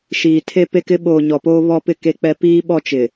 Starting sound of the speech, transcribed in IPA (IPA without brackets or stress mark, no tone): ʃ